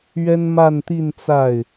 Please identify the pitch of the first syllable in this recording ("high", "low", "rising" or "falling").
high